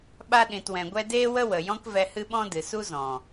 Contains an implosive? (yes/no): yes